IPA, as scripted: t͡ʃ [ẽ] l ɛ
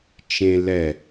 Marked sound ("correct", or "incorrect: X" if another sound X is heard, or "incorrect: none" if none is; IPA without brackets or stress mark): correct